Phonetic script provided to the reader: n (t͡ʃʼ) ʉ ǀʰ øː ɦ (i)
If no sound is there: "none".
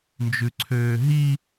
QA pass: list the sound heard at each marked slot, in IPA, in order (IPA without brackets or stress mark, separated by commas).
d͡ʒ, i